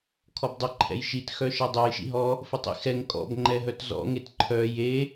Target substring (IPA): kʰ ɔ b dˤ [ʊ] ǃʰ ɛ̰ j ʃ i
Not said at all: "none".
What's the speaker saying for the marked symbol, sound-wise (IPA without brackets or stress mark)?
ʊ